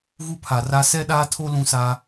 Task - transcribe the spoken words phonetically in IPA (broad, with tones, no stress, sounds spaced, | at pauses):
ɣ u˦ pʰ a˨ r a˦ s ɛ˦ ɗ aː˦ tʰ o˦ l ũ˦ s a˦